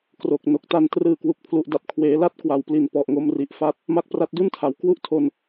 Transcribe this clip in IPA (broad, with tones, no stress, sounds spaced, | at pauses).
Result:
k r o˨˩ k̚ n o˨˩ k̚ t a˧ n t r ɯː˨˩ k w u˨˩ k̚ pʰ l u˨˩ ʔ d a˨˩ p̚ kʰ w eː˩˦ l a˥˩ t̚ k w a˨˩ w p l i˨˩ n p ɔ˨˩ ʔ ŋ o˦˥ m r i˨˩ ʔ f a˥˩ t̚ | m a˦˥ k̚ p r a˦˥ t̚ d u˥˩ n tʰ a˩˦ w k w u˥˩ ʔ tʰ o˧ n